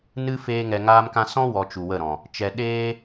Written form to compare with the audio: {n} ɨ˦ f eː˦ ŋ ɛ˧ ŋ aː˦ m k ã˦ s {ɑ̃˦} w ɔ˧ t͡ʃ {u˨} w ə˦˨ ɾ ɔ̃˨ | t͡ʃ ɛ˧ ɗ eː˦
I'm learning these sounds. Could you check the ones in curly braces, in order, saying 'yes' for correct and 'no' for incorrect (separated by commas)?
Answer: yes, no, yes